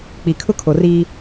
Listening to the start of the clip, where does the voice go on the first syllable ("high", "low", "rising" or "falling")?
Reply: low